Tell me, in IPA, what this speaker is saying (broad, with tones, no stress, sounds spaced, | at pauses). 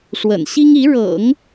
ʂ w ə̰˨˩ n ɕ i˥ ŋ i˧˥ ɻ ɤ̰˨˩˦ ŋ